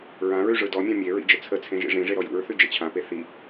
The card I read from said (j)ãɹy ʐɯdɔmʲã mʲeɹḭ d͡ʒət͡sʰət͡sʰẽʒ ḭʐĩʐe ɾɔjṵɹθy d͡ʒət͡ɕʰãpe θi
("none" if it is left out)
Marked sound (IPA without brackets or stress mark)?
ɹ